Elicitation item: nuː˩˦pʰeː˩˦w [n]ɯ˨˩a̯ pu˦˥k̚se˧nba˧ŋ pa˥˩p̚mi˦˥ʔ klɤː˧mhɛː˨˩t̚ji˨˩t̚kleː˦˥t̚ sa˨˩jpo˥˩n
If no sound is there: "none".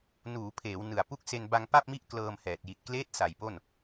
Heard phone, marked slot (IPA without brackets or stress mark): n